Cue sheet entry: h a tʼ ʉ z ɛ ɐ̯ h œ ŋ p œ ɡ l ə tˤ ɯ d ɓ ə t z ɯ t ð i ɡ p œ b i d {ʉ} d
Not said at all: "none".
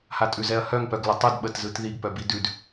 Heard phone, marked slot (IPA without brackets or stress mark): ʉ